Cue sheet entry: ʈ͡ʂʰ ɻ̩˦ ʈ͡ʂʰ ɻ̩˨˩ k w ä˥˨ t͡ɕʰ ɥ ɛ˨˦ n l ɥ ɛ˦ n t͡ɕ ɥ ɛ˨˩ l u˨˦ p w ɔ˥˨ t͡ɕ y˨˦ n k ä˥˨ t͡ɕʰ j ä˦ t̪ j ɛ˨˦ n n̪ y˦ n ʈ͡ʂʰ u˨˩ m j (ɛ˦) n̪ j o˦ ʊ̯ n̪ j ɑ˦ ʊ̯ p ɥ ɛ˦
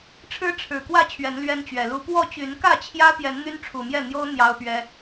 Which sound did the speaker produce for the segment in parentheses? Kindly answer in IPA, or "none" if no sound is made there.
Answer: ɛ˥˨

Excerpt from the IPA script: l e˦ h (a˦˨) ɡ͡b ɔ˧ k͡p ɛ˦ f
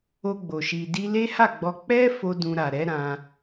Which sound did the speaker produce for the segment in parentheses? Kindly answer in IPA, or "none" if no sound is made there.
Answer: a˦˨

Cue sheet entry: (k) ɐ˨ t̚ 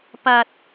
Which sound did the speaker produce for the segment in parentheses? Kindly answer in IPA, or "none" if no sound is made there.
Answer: p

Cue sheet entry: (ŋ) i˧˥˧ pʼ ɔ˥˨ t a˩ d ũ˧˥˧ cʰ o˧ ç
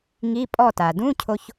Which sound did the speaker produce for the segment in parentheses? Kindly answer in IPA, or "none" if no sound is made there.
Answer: ŋ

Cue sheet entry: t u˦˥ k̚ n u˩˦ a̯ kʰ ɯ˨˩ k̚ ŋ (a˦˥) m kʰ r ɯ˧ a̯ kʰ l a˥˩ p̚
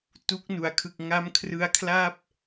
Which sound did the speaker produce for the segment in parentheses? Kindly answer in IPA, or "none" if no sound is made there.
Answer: a˦˥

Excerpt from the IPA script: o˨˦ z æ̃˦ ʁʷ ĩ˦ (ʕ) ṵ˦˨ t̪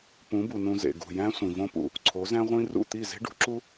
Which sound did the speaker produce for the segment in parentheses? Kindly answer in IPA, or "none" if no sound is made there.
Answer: r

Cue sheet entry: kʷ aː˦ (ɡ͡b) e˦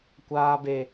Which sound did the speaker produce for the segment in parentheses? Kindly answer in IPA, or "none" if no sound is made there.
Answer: b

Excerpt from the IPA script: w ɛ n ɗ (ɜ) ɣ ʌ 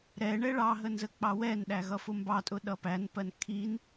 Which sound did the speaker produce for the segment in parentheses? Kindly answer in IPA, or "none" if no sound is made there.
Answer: æ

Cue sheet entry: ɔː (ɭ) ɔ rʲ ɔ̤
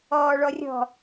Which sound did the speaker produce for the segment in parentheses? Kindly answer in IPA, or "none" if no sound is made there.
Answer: ɭ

